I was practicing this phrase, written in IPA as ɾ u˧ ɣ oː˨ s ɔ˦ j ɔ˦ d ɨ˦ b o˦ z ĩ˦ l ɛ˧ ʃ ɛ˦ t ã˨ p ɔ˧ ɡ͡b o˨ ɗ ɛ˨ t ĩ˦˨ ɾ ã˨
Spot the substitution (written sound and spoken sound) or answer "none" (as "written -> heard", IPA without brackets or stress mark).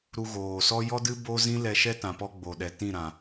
none